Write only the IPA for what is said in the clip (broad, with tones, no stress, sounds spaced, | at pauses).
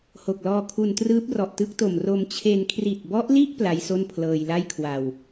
h o˨˩ k̚ l ɔː˧ kʰ u˧ n t r ɯː˦˥ p̚ r ɔ˨˩ ʔ t ɯ˦˥ k̚ t o˨˩ m r o˧ m t͡ɕʰ e˧ n kʰ r i˨˩ t̚ b ɔ˦˥ ʔ l i˥˩ ʔ p l a˦˥ j s o˥˩ n pʰ l ɤː˧ j l a˥˩ j kʰ w a˨˩ w